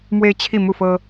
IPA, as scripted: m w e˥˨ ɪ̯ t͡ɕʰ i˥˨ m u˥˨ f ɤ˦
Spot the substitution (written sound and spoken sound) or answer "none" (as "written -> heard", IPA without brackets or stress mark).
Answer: e˥˨ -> e˦